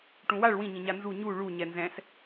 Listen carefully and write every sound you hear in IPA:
ʈũwaɭ wĩɲĩɲa nzu ɲu ɭu ɲɛnzɛ̃s

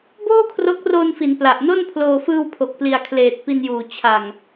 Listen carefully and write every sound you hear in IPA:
boː˥˩kʰro˦˥k̚ roː˧nfi˩˦n pla˨˩ʔno˥˩npʰloː˧ fɯː˧wpʰo˨˩k̚pli˨˩a̯kʰleː˨˩t̚ pi˧njuː˨˩ t͡ɕʰa˨˩ŋ

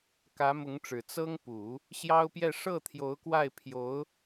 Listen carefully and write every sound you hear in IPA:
kä˧˥mʊ˧˥ŋʈ͡ʂɻ̩˨˩ t͡sɤ˥ŋpu˨˩˦ | ɕjɑ˥ʊ̯pjɛ˥˧ ʂɤ˥˩ t̪ʰjo˧˥ʊ̯kwa˥˩ɪ̯pʰjo˧˥ʊ̯

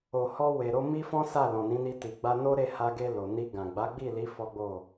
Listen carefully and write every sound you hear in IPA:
o˨hɔ˧ we˨ ɾo˧ mi˦fɔ̃˦sa˦˨ lɔ̃˨nĩ˨˦ni˧ ti˨ɡ͡ba˧no˦ɾe˦˨ ha˧ɡe˧ lo˨ ni˧ɡã˨ ɡ͡ba˨˦ɡ͡bi˦˨li˨˦ fɔ˦ɡ͡bo˦˨

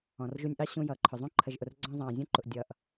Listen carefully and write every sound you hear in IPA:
ɔ̃˩rʒu˧nʲʔɑ˥ɕũ˧ jʌː˩ǃʰʊ˩zˤũ˥ ǃʰə˩ʒʔʊ˩r ɡ͡ǀɔ̃˧zˤɑ̃ː˩zʲũ˥ǃʊ˩ʔ dʲʌː˩ʔ

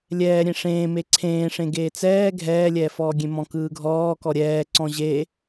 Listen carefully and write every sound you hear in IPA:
lʲɛːɾʲẽ ʂẽːme ǀʰẽːʂẽ ɡeːt͡sɛː ɡʱɛːlʲɛːfɔːɡʲẽ mɔ̃kɯːɡʱɔː kɔɾʲɛːǀɔ̃ ʑeː

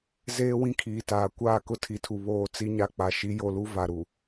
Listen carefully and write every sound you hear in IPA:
zeː˦wĩ˦kʰiː˨taː˨ kʷaː˦˨kʊ˦tʰi˨tʰu˨ βoː˨ t͡si˦ɲa˦k͡pa˨ ʃi˨˦jo˨lu˦ va˨ɾu˨

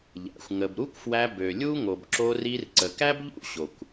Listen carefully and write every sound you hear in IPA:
ʎæ̰˩xʷ ŋə˩b ɾu˥kʷfwæ˧ bø˩lʲu˥ŋo˩b ǁo˧ri˧r ǀə˩kæ˥bʎṵ˥ ɕo˩kʷ

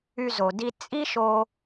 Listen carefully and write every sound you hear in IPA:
y˧zo˨di˧ t͡sʼi˦ʃo˧

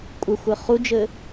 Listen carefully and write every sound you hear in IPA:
kʷʼɘxʷɘ χud͡ʒɘ

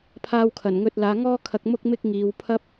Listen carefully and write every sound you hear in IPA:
pʰaː˧wkʰɐ˨˩nŋɵ˧t̚ laː˨˧ŋɔː˥kʰɐ˧k̚ mʊ˥k̚mɪ˥k̚ ŋiː˨˧wpʰɐ˥p̚

